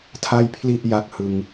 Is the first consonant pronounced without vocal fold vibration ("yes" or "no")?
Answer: yes